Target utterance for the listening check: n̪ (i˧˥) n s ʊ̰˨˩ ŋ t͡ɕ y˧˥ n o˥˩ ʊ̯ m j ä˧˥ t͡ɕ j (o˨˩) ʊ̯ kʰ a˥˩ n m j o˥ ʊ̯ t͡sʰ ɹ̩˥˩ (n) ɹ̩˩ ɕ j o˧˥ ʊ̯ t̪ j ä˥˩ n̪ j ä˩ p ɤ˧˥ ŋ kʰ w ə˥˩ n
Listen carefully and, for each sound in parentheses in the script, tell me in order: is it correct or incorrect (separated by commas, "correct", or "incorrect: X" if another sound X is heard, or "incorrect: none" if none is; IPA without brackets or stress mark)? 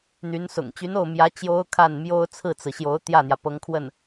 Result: incorrect: y˧˥, incorrect: o˥, incorrect: t͡s